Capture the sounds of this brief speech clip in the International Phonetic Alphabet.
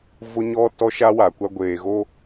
v ʊ˦ ɲ ɔ˦ t ɔ˦ ʃ a˦ w a˨ kʷ a˦ ɡʷ eː˨ ɣ o˦

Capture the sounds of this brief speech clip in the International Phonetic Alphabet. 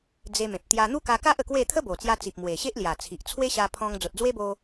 d͡z e˧ m ẽ˨ p̚ t̪ j a˧ n̪ u˦ k a˧ k a˦ ʔ ə˨˩ k w e˥˧ t̪ʰ ə˦ b o˨˩ t͡s j a˧ t͡s i˨ p̚ m w e˨˩ ɕ e˦ ʔ l j a˨˩ t͡sʰ i˨ ʔ t͡sʰ w e˦ ɕ a˧ pʰ ɔ̃˧ ŋ d͡z o˨ t̚ d͡z w e˦ b o˧

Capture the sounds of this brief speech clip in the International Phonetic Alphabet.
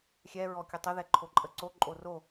xʲ ɛ ɹ ɔ kʲ ə tˤ ə ð ɛ ǃʰ o ǃʼ ə ǀ o ǃʼ o r o

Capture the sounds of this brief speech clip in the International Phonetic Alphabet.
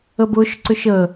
ə b ʊ ʃ ǀ ʏ ʃ ə

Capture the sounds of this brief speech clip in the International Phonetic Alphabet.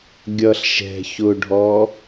ɡʲ ʌ ɬ ʃ ɛ̤ ç ʊ ɖʱ ɔ

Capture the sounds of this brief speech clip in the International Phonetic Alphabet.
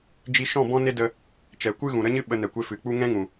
d͡ʒ i˧ ʃ ɔ̃˦˨ b ɔ̃˦ n e˦ d ə˧ | t͡ʃ ɛ˨ kʷ ɨ˦ ɣ ũ˨ ɾ ə˦ ɲ ɨ˦ ɓ ə˧ n ɛ˨ kʷ e˧ f ɨ˨ k͡p u˦ ŋ ɛ̃˦ ŋ ũ˨

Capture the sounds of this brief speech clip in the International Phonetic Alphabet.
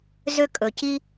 z ø˥ kʼ ɵ˩ c i˥

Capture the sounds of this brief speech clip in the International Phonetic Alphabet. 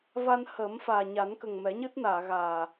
v a˧ n h əː˨˩˦ m f aː˨˩ ɲ a˨˩˦ n k ə˨˩ ŋ m ɛ˨˩˦ ɲ ɨ˦˥ t̚ n aː˨˩˨ ɣ aː˨˩

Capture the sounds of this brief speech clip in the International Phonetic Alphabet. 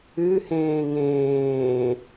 ɨ h ẽː ŋ ẽː

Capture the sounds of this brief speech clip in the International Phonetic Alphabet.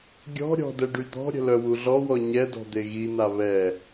ɡʲ ɔ̤ ɾʲ ɔ̤ d ɛ ɖ y d̪ ɔ̤ ɾʲ ə̤ l œ w u ɮ ɔ w ɔ ɲ ɛ d ɔ̤ d̪ e ɣ i n̪ a β ɛ

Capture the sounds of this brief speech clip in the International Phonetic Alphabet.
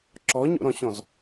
ǁ ɔ ɲ o̰ ɾ ɔ̃ ɕ ɔ̃ z

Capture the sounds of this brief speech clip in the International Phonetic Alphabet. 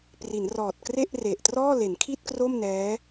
p r i˩˦ n r ɔː˨˩ t̚ k r e˥˩ ʔ r e˨˩ ʔ t r ɔː˥˩ l e˩˦ n kʰ i˥˩ t̚ k r o˥˩ m n ɛː˦˥

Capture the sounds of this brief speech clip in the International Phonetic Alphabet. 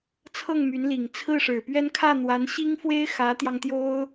t͡sʰ ɤ˥˩ ŋ m y˧˥ n l i˨˩ ŋ t͡sʰ ɹ̩˥˩ ʂ ɻ̩˨˩ p ɥ ɛ˥ n kʰ ä˥˩ n̪ w a˧˥ n ɕ i˥ ŋ f w e˥ ɪ̯ x ä˧˥ t̪ j ɑ˧ ŋ t̪ j o˥ ʊ̯

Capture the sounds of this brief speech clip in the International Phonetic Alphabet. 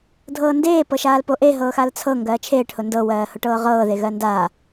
dʱ ɤː n d eː p ɤ ʃ aː l p o ʔ e ɦ ɤː x a l t͡sʰ ɤ ŋ ɡ ɜː t͡ʃʰ eː ʈ h ʊ n d ɤ w ɜː h ʊ ʈ ɤː ʁ ɤː ð e ɣ ɜ n d aː

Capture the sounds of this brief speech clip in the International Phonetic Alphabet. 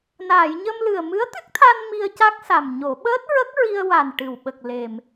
n aː˨˩˨ j ɲ ə˧ m l ɨ˨˩ ə̯ m ɨ˧˥ ə̯ t̪ ɨ˦˥ k̚ t̪ʰ a˧ n m i˧ ə̯ c a˦˥ k̚ s a˨˩ m ɲ o˨˩˦ ɓ əː˦˥ t̚ ɹ ə˦˥ k̚ ɹ i˧ ə̯ w a˨˩ n ʈ ɨ˨˩˨ w ɓ ə˨˩ k̚ l e˨˩ m

